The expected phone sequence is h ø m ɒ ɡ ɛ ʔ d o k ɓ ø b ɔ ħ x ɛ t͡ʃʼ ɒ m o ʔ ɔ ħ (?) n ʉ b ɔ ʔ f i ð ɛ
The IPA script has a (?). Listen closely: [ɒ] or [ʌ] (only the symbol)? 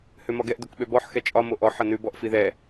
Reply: ʌ